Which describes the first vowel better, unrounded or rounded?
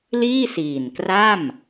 unrounded